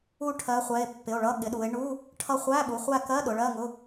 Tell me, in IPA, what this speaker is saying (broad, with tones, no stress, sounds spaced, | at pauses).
u˦˨ ʈʰ ɜ˨˦ χʷ ɛ˩˧˩ e̯ pː ɪ˩˧˩ o̯ ɭ ʌ˧˥˧ ɠ ɪ˨˦ ɗ u˨˦ e̯ ɳ u˧˥˧ | ʈʰ ʌ˦˨ χʷ æ˧˥˧ ɓ u˩˧˩ χʷ æ˦˨ k ɜ˧˥˧ ɗ ʊ˨˦ ɭ ɜ˧˥˧ ŋ ʊ˧˥˧